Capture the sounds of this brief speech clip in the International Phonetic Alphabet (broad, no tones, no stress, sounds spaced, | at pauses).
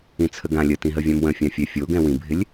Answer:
ĩ t͡sʰ ə ɡ ã lʲ ə t ĩ ɦ ə vʲ ã m w ə̃ fʲ ã fʲ ɛ fʲ o ɡ ɛ̃ w ĩ bʱ ɪ lʲ